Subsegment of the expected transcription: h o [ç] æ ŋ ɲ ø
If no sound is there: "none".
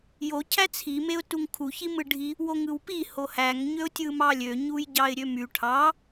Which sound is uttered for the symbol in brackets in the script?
h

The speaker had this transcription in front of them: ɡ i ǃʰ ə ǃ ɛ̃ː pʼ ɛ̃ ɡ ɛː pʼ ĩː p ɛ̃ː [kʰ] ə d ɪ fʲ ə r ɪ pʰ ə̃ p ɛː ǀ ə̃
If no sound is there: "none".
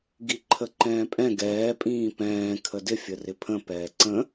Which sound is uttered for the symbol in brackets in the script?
kʰ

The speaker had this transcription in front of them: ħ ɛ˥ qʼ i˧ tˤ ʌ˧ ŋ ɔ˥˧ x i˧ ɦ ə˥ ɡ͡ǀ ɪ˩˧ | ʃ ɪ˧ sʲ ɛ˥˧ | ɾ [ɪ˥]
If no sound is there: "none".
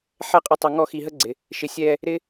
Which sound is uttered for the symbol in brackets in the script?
ɪ˥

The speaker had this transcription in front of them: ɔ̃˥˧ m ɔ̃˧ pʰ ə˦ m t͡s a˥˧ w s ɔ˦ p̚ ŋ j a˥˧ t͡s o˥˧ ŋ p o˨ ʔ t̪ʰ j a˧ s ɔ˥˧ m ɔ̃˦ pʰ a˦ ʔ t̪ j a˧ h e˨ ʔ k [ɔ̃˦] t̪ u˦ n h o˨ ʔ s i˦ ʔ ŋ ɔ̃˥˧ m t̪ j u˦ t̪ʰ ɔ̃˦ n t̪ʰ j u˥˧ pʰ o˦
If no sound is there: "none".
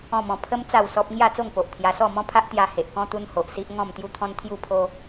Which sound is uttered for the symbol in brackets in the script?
ɔ̃˦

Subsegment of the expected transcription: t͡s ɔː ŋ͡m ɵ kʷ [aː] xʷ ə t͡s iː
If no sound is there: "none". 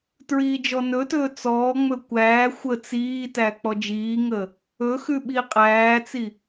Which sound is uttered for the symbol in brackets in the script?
æː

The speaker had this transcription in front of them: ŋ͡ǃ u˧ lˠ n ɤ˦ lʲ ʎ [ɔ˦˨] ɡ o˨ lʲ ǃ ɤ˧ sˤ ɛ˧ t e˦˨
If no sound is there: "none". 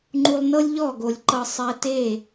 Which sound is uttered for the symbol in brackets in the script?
ɔ˦˨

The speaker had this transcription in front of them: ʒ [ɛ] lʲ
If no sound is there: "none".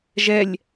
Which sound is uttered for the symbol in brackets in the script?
ɛ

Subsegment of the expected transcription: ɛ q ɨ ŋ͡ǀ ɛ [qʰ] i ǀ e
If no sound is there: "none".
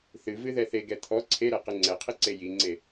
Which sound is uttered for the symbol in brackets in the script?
qʰ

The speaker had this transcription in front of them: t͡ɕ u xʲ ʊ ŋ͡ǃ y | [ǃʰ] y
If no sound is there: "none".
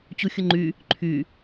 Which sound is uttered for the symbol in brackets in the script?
ǃʰ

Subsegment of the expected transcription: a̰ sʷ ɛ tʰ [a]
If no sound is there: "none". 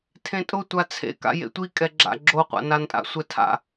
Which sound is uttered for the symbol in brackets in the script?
a̰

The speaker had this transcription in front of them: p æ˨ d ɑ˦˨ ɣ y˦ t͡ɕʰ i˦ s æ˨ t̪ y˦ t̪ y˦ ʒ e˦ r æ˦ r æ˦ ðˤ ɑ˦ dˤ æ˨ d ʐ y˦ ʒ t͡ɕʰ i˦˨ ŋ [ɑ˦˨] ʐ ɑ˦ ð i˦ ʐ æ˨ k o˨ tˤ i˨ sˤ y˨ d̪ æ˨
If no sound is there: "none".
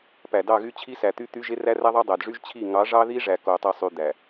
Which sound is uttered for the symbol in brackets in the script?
ɑ˨˦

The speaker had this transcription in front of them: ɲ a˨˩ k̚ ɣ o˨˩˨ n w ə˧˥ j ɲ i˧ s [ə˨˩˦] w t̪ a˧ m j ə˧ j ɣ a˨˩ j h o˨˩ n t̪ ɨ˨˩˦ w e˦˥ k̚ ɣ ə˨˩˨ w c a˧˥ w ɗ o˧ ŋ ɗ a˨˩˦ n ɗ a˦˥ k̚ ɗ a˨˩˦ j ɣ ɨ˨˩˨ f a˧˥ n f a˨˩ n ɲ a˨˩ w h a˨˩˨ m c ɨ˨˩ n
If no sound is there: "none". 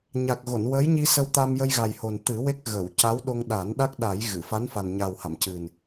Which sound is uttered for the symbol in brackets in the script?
ə˧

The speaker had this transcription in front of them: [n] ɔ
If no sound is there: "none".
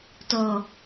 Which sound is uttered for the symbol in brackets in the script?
t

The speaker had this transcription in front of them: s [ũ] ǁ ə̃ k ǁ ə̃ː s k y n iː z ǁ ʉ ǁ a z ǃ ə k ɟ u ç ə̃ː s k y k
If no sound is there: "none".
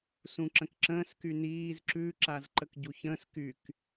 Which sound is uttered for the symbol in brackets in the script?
ũ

